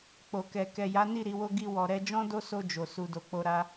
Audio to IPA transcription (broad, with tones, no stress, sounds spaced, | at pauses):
k͡p o˨ k ɛ˨ k ɛ˨ j a˨˦ n i˦˨ ɾ i˨˦ w o˦ ɡ i˧ w ɔ˨ ɾ ɛ˧ d͡ʒ ɔ̃˦ d o˦ s o˧ d͡ʒ o˨ s u˨ d o˨ k͡p o˧ ɾ a˦